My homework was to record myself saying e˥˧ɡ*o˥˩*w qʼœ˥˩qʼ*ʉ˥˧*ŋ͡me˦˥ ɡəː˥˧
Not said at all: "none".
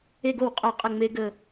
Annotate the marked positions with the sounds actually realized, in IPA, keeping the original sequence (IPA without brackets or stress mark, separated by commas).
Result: o˥˩, ə˥˧